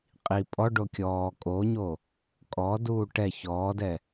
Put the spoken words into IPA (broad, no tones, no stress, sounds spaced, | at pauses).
qʼ i pʼ ɔ ɖ o kʲ ɔː kʼ o ɲ o | kʼ ɔ d uː ʈ ɛ ç ɔː d ɛ